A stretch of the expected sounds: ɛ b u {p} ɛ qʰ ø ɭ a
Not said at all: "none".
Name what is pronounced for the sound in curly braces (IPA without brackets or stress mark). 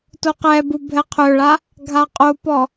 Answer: bʱ